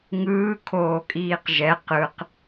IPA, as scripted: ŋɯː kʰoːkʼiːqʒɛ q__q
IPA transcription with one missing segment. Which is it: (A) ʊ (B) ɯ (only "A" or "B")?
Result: B